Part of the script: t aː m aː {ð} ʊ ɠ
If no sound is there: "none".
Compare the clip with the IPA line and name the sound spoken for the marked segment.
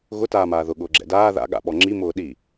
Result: ð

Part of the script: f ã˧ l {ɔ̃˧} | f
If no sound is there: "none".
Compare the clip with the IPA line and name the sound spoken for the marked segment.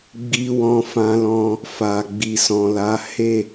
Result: ɔ̃˧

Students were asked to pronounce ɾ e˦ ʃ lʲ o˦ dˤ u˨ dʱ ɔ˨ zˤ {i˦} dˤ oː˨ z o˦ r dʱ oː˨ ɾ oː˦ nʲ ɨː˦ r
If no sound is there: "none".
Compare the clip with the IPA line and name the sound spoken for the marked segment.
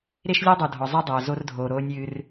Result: i˦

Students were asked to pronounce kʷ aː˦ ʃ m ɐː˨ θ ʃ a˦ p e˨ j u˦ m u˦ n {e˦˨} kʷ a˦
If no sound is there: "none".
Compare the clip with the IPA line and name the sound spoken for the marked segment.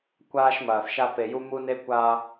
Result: e˦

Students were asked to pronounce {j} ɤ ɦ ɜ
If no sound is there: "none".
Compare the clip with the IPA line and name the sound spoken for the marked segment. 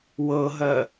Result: w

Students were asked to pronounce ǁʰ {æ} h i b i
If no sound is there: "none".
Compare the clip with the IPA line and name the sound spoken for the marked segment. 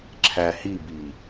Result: æ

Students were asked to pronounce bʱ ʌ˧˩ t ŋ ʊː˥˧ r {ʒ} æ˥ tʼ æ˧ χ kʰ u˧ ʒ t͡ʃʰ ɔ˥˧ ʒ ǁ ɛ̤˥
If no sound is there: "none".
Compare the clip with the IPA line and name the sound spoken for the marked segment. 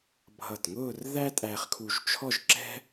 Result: ð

